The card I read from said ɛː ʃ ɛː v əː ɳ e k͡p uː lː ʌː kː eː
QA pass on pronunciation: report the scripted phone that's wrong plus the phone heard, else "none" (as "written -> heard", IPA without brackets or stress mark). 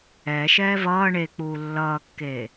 əː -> ʌː